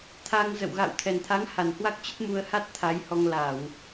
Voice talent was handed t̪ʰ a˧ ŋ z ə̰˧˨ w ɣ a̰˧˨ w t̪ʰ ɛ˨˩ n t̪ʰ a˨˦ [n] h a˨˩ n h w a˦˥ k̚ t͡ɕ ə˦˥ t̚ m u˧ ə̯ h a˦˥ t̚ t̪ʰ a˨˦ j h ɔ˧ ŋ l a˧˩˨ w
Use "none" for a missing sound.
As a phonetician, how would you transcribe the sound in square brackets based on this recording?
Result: ŋ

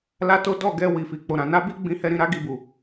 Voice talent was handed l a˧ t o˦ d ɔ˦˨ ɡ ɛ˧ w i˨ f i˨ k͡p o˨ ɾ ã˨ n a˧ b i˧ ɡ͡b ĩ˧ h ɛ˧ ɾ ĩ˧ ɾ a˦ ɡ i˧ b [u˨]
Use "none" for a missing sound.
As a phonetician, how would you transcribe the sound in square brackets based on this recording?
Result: u˨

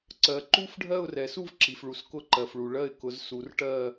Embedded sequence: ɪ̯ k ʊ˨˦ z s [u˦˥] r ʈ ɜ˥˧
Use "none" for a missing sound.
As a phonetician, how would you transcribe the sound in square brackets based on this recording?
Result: u˨˦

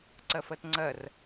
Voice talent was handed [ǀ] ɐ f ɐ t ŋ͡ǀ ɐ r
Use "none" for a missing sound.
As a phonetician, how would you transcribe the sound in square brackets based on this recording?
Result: ǀ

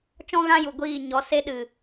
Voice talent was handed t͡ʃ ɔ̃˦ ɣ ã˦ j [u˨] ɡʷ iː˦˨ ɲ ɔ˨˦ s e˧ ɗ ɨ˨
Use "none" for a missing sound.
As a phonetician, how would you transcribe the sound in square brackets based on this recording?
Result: u˨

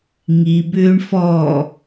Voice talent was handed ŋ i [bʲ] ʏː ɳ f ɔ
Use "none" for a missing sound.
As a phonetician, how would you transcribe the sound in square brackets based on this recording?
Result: b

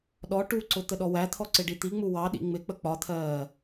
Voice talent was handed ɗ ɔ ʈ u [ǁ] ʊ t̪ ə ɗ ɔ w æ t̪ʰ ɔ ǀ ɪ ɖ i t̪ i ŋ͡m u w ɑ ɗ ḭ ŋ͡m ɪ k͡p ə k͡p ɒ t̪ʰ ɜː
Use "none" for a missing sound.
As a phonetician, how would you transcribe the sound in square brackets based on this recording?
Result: ǀ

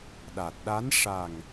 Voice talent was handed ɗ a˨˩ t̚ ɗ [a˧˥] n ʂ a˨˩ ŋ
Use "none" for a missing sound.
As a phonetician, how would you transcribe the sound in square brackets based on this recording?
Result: a˧˥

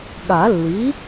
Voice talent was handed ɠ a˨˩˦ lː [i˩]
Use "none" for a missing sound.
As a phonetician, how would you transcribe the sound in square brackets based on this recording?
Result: i˩˥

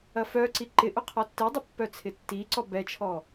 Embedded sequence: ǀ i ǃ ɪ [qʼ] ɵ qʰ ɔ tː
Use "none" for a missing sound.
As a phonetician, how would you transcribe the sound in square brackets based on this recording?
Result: ʔ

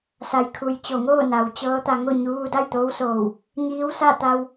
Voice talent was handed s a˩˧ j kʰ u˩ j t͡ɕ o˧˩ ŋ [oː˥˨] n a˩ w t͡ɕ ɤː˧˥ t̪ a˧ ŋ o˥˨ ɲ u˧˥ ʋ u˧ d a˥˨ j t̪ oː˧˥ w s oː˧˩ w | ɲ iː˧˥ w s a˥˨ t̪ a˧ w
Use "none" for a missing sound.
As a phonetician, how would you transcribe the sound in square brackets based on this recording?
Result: oː˥˨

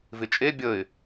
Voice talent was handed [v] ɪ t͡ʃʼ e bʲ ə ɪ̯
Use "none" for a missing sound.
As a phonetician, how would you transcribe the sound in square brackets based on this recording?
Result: v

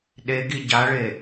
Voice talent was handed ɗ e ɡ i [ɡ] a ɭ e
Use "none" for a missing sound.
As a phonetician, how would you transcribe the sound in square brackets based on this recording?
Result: ɟ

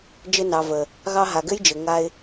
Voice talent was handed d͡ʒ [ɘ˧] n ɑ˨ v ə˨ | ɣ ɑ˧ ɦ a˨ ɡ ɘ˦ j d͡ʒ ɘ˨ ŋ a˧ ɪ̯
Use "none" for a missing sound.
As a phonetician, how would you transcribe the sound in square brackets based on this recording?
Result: ɘ˧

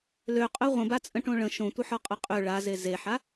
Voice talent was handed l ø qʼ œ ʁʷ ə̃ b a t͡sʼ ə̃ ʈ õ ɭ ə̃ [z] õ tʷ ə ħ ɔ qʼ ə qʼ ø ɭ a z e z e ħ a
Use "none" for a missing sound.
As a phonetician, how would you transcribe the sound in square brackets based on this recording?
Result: ʃ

